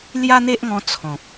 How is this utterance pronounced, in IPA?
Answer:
lja˦n̪e˦ʔŋɔ̃˧ t͡sʰɔ̃˨k̚

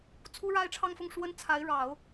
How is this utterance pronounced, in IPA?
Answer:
t͡sʰu˥ɻa˥ɪ̯ʈ͡ʂʰɑ˥˧ŋfʊ˥˩ŋ ʂwə˥n t͡sʰa˧˥ɪ̯ɻɑ˨˩˦ʊ̯

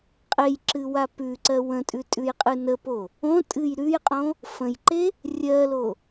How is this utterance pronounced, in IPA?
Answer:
qʼejǁɨwa pʉǀɜ wə̃tʼʉtʼʉjqʼɨ nəpo | õtʼɨj ɾʉjqʼõ | fə̃jǃe | rʲɜlo

